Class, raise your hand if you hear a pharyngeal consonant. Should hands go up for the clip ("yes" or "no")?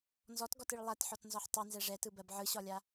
yes